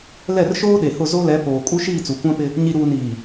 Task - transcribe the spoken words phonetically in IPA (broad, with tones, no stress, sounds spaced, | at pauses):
l ɛ˦˨ r ʃ oː˦ ɗ e˨ h ʊ˦˨ z o˦ l ɛ˨˦ p oː˨ kʼ u˦ ʃ iː˦˨ t͡s u˨ kʷ ã˦ p ɪ˦ | ɲ i˨ ɾ uː˨ n iː˨